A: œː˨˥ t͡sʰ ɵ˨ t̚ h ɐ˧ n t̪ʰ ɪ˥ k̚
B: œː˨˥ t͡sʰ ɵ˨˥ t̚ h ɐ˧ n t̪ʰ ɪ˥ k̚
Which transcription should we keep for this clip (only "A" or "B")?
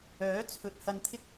B